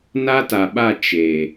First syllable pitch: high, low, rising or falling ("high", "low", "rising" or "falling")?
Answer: high